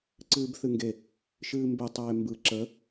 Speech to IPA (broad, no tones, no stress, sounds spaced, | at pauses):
ǀ ɨː b θ ɨ ŋ ɡ e | ʃ ɨː m b e tˤ eː m b ɯ ǁ ə